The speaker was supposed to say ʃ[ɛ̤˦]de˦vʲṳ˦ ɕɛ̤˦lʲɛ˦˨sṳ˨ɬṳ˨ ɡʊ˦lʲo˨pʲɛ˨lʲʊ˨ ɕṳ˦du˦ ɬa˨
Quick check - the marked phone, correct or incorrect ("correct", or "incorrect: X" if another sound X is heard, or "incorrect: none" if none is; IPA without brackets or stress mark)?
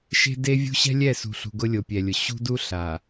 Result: incorrect: e̤˦